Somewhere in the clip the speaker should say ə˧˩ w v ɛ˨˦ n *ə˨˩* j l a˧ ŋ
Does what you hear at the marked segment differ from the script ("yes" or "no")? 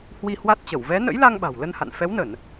yes